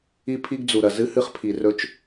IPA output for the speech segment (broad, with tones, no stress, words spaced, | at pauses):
i˦pʰi˦ɡd͡zu˨ɾɐ˨ zɨ˦hɨ˦χpʰi˨ rɵ˦t͡ʃ